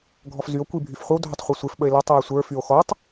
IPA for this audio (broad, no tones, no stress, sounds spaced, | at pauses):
ɡʱ ɔ f z y o̯ kʷ i bʱ y f χʷ ə w dʱ ɵ tˤ χʷ e sʷ e f ɓ ə e̯ l ɔ tˤ w ɵ sʷ ə˞ f y o̯ x ɔ tˤ